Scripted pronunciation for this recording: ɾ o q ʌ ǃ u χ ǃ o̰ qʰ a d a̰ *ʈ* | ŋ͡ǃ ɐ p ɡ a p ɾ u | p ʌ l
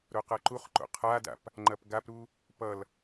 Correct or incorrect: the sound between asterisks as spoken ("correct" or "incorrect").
incorrect